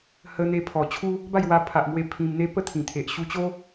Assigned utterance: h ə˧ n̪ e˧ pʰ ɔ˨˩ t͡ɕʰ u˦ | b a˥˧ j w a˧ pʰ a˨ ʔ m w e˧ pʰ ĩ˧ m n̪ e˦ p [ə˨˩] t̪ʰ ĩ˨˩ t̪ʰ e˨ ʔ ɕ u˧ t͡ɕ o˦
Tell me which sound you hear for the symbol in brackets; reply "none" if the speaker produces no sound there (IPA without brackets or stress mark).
ə˥˧